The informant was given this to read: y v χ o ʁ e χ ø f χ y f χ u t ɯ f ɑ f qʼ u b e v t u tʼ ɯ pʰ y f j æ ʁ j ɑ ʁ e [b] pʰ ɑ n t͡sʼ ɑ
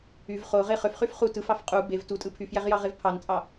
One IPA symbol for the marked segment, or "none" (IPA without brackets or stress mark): v